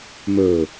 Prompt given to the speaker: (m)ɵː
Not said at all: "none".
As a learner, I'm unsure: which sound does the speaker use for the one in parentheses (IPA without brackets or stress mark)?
m